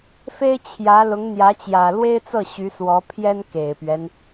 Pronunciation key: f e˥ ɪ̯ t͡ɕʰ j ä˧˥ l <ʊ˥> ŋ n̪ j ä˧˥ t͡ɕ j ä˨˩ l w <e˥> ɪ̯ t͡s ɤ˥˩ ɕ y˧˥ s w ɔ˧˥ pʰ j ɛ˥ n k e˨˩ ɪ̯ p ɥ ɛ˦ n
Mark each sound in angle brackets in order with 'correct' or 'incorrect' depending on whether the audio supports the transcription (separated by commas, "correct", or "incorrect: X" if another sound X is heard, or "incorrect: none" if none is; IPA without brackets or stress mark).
incorrect: ʊ˧˥, correct